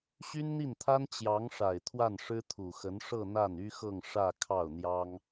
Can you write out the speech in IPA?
ɕy˥nn̪i˥˩nt̪ʰa˥n t͡ɕjɑ˧˥ŋʂa˨˩ɪ̯ t̪ʰwa˥˩nʂɻ̩˥t̪ʰu˨˩xə˧˥n ʂɤ˥˧ n̪a˥˩ny˥xɤ˥˧ŋ ʂä˥˧kʰɑ˥˩ʊ̯n̪jɑ˥ŋ

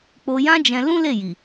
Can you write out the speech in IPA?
k͡po˧jã˦d͡ʒɛ̃˧ lũ˦le˦˨ ji˨

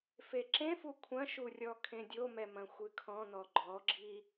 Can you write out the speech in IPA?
feǁẽfu kʷʰɐ̃ʃu rʲɔkʰẽdʲomɛ mɐ̃xʷɨkʰɔ̃nɔ ɡ͡ǃɔɡ͡ǁi

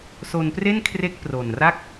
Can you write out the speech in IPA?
so˧npre˥˩nkʰre˦˥k̚ pro˨˩nra˥˩k̚

